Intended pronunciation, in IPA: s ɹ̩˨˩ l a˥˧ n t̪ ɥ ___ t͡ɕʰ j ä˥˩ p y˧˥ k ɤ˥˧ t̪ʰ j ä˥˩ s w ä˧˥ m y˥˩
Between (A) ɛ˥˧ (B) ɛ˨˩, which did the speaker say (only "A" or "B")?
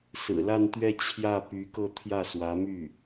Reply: A